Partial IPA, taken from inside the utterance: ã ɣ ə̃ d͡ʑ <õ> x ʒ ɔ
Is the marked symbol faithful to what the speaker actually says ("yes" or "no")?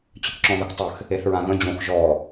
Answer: yes